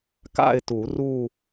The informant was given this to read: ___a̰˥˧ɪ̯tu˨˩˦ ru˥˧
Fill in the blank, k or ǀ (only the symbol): k